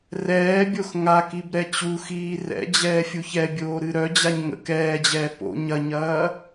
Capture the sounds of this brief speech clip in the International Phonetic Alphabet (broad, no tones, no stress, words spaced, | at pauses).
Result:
rɛːbʲox ŋa kibɾɛt͡ɕuxiː rɛ̰ d͡ʑɛːfʲuçɛbʲoː ɾɨɾœd͡ʑaɲ ŋə̰k ɛːd͡ʑɛː po̰ ɲɐɲɐː